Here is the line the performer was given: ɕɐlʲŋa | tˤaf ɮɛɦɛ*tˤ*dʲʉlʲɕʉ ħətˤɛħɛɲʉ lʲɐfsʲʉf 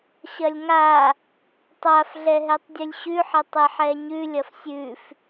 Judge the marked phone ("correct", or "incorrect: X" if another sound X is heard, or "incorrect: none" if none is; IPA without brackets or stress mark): correct